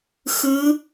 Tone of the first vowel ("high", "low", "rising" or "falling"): rising